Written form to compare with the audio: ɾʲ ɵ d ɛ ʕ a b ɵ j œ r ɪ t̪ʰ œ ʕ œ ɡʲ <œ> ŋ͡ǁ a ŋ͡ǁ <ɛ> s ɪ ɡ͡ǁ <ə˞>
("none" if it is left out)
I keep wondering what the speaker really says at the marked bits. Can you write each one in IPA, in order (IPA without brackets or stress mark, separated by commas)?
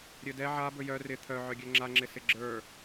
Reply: œ, ɪ, ə˞